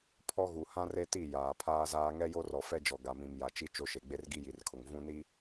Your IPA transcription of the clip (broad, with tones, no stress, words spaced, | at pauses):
pʰɔ˦ɣu˨ hã˦re˦ti˦˨ jaː˨pʰaː˦zaː˦ ŋɛ˦jo˦rɔ˨fɛ˦ d͡ʒɔ˨ ɡa˨mĩ˨m ja˨t͡ʃi˦ t͡ʃo˦ʃe˨ ɡ͡be˦rɡi˦ji˨rkʰʊ˨ŋ vũ˦ni˦